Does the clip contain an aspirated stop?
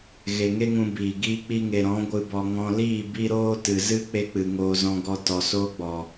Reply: no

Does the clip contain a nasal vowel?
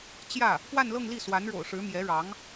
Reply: no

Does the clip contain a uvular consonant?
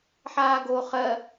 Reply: yes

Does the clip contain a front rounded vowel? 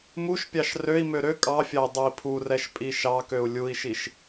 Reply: yes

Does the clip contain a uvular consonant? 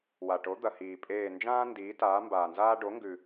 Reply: no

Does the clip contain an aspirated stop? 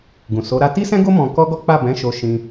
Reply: no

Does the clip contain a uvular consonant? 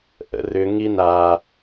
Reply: no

